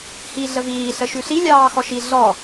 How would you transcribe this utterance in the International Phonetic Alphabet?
h iː ɮ ə v iː ɬ ə ʃ ʉ ɬ i lʲ ɑː x ɔ ʃ i ɮ ɔ

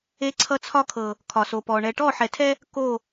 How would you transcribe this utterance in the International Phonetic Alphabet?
e˦ ǀʰ ʌ˦ t͡sʰ ɒ˦ kʰ ɤ˨ | kʰ ɒ˨ s o˨ p ɔ˨ ɳ ɛ˨ ʈ ɔ˦˨ ħ ɛ˨ tʰ ɛ˦ | k o˦˨

